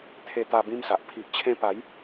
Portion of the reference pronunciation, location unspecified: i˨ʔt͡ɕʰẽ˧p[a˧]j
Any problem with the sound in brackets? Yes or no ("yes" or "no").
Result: yes